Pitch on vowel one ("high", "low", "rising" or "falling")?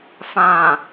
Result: low